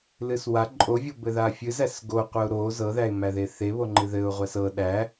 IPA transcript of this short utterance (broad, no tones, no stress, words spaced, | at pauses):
lɨswa ǃʼovʲɤ bɘðafʲɨ zæsɡoqʷəʊ̯ ɾo zɤðæɪ̯mæðe θeβoŋ͡ǃɨ ðɘʊ̯ʁʷæs ɤ ɗæ